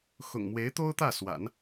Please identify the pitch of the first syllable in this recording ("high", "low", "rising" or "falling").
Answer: low